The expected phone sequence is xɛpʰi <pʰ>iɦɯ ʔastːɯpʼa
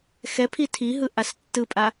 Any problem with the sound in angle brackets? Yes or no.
yes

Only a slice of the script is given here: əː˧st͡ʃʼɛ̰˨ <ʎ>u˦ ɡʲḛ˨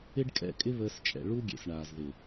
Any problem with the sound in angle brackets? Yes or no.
yes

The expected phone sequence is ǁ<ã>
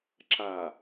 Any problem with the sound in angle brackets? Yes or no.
yes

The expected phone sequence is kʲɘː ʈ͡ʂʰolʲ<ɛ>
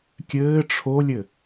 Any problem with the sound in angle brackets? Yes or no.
yes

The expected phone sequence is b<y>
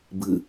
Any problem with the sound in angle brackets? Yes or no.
yes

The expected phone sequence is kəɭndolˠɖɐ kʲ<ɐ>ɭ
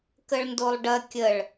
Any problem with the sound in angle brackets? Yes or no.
yes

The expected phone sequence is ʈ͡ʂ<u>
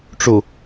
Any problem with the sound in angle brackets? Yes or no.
no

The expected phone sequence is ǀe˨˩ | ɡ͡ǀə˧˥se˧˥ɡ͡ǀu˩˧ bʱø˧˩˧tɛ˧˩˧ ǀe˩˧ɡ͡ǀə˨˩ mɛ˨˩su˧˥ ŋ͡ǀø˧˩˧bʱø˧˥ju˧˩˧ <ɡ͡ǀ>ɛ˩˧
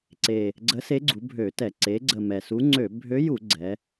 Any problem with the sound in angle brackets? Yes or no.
no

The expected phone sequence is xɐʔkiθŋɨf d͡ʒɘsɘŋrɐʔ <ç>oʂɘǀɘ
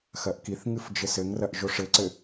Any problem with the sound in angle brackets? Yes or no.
yes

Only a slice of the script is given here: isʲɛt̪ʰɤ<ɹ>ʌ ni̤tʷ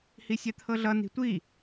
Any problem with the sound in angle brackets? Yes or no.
yes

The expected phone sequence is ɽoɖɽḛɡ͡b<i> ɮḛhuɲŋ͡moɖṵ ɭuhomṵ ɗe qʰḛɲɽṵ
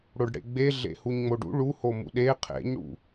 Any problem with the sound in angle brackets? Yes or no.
yes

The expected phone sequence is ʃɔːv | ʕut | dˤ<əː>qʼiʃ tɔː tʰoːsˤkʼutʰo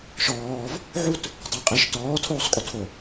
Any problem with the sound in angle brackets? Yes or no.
yes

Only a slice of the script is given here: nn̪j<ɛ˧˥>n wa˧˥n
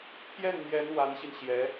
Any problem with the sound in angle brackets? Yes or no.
no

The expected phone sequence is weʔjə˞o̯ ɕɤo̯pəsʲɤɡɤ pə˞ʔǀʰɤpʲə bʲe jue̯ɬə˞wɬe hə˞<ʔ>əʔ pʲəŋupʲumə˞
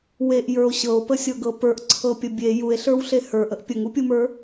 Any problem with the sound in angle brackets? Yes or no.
no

